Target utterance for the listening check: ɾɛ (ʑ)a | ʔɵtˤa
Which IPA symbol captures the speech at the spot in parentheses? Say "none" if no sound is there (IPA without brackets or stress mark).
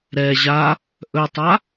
ʑ